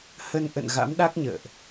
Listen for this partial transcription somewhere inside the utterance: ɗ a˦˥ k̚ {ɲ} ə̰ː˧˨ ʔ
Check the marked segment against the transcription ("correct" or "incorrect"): correct